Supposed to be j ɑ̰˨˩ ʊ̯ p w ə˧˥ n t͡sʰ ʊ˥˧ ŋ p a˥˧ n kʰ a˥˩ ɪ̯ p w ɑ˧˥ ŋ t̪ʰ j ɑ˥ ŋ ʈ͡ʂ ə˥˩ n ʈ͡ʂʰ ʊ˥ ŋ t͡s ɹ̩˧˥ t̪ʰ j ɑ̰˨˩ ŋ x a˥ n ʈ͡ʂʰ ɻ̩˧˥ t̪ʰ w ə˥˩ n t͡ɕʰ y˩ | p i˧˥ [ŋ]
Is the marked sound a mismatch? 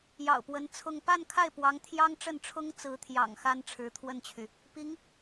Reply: no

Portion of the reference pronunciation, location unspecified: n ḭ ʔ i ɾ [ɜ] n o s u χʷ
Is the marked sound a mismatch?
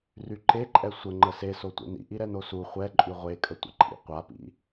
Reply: yes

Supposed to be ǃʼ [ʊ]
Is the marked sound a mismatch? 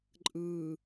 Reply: yes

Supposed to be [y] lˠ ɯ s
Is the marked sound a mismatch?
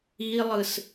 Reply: yes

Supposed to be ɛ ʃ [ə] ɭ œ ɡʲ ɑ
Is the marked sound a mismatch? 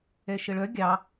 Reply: no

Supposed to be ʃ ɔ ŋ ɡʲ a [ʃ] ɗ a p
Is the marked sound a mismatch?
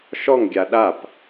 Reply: yes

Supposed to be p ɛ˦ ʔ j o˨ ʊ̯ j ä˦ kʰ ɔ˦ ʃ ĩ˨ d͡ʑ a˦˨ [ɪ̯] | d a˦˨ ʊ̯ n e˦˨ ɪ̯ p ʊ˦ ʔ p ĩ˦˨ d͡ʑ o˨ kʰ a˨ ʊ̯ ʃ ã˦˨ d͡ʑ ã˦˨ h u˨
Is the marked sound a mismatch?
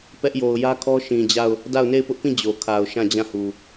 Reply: yes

